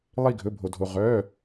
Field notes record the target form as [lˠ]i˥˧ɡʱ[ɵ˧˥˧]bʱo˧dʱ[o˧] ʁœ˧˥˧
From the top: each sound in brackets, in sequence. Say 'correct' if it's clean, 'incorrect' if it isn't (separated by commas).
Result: correct, correct, correct